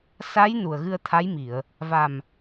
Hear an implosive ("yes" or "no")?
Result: no